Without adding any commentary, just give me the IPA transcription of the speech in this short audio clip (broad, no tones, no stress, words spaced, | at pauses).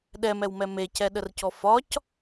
ɗɛmɛwmɛ mecɛɗərcɔ fɒc